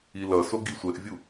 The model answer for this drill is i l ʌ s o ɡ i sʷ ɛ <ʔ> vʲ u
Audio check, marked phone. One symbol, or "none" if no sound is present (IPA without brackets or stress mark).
ʔ